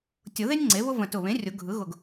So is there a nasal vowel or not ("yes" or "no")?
yes